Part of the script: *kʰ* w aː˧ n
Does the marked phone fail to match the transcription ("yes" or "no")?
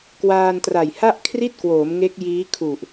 yes